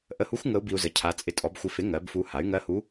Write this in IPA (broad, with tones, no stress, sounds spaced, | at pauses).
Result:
ʔ ə˧ h u˧˥ xʷ ŋ ə˧˥ u̯ b i˧ u̯ z ə˩˥ cʰ a˩˥ t͡sʼ ɪ˧ tʼ ɔ˩˥ b xʷ ɪ˧ f ɪ˩˥ ŋ ɜ˩˥ b f u˧ h a˩˥ y̯ ŋ ɜ˧˥ h u˧˥